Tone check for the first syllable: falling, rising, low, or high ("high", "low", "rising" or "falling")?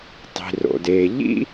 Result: low